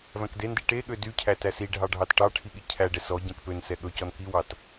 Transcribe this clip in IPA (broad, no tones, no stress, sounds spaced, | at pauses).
v æ̃ k d e n d i ʈ e ɠ ø d y cʰ æ t æ s i ɖʱ ɑ ɖʱ ɑ t ʈ ɑ ʈʰ i ɠ i cʰ æ ɖ ɛ s ɔ ɟ æ̃ k p ø n s ɛ ɠ ɵ c ɔ n k i w ɑ t